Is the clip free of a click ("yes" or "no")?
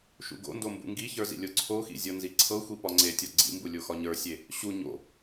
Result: no